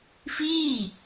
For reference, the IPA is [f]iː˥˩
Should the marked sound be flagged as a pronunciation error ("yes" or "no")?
no